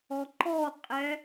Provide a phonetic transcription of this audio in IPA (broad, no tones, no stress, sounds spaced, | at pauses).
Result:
ɔ ǃ ɔ qʼ ɛ